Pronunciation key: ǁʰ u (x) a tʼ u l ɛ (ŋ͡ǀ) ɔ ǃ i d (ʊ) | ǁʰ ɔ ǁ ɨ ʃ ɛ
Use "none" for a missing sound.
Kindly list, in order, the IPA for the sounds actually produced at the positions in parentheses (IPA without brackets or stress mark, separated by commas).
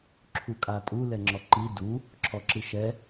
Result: kʼ, ŋ͡ǁ, u